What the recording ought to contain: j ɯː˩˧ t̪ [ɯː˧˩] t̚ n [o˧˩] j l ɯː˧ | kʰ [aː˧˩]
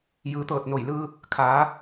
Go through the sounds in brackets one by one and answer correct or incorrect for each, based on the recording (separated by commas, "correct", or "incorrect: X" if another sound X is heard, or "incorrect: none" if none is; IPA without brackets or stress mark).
incorrect: ɤː˧˩, correct, incorrect: aː˩˧